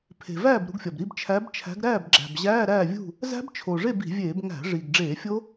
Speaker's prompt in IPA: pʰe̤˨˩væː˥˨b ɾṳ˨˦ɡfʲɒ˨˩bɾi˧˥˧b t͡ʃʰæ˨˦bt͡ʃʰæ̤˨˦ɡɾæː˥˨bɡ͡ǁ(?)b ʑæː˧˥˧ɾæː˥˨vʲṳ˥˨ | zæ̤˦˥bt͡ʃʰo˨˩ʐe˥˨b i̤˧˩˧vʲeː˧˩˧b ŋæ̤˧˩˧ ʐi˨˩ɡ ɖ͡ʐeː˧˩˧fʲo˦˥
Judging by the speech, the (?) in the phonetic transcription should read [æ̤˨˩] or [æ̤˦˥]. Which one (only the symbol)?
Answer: æ̤˨˩